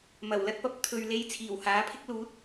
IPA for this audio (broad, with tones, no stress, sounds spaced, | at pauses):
m ɐ˨˩ w l ɐ˧ t̚ p ɐ˨ p̚ t̪ʰ ɵ˨ ɥ l e˧ j t͡sʰ iː˨˩ w h aː˨˥ pʰ ɪ˥ k̚ l uː˨˥ t̚